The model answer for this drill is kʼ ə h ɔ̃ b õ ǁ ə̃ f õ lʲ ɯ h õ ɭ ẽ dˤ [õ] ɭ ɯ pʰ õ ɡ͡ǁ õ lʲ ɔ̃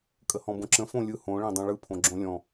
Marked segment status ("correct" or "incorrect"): correct